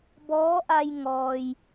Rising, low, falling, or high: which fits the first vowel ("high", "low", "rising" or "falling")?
rising